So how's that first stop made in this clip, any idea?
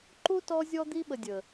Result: click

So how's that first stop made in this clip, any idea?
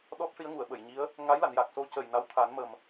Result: implosive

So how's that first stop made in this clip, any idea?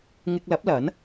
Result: plain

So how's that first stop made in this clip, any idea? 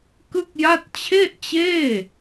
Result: plain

